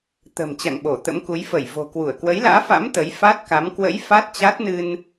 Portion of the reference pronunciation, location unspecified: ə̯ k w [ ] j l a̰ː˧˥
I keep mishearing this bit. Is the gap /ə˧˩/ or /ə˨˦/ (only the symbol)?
ə˨˦